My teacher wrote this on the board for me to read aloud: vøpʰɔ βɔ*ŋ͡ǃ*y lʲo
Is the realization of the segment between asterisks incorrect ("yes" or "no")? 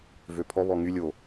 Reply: yes